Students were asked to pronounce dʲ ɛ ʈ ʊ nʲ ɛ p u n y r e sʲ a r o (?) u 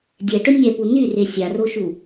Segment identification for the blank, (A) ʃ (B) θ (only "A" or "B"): A